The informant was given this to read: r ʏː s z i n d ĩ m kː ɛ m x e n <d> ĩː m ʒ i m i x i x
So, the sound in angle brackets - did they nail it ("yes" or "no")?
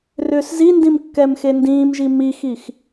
yes